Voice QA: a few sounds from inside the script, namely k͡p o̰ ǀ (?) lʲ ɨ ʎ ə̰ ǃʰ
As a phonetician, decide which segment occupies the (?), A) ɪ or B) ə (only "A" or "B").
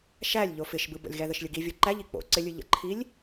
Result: A